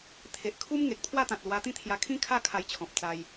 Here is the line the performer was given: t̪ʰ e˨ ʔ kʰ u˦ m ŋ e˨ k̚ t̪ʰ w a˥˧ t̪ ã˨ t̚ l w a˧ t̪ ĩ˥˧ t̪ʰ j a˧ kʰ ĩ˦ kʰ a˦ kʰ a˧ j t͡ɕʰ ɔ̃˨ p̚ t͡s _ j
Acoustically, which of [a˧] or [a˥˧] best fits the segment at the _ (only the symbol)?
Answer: a˧